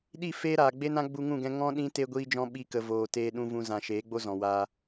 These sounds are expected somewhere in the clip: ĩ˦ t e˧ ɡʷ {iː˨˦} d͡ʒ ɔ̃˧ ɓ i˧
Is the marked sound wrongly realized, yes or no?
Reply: yes